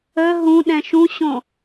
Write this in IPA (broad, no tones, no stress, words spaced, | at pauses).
ə ɦũ ɗɛ̃ʃũɕõ